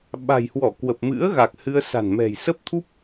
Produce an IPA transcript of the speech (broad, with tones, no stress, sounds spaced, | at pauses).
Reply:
ɓ a̤˨˩ j h w ɔ˧˩ k w ə˨˩ p̚ m ɨ̰˧˥ ə̯ ɣ a˨˩ k̚ h ɨ˧ ə̯ s a̤˨˩ n m ɛ̤˨˩ j s ə˦˥ p̚ t̪ʰ u˦˥ p̚